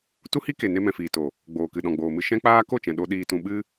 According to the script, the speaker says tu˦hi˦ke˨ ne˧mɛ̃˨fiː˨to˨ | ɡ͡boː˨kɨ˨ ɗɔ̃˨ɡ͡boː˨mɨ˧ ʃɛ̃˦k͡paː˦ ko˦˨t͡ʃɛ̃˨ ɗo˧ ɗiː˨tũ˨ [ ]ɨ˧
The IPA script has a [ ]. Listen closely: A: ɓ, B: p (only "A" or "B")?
A